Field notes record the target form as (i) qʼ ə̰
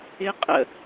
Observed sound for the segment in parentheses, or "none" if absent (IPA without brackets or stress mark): ɪ